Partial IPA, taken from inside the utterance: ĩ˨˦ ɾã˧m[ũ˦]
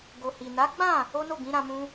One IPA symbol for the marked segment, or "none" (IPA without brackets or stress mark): ũ˦